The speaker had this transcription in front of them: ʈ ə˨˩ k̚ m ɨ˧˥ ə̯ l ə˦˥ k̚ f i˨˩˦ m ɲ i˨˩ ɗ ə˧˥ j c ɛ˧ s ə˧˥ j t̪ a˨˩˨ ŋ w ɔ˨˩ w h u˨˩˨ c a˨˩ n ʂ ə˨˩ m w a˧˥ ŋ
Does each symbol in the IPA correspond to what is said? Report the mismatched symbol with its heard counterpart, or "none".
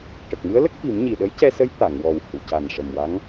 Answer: none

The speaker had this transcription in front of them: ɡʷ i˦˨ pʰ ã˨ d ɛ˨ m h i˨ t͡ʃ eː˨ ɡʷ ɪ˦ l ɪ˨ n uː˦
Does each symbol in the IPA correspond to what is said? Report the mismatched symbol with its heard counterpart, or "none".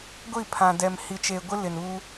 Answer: none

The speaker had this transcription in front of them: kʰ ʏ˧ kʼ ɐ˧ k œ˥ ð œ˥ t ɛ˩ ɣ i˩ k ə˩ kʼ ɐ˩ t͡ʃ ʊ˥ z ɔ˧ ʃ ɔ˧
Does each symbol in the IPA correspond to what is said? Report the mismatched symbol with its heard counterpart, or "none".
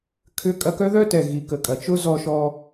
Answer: none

